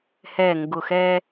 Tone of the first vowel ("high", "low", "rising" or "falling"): low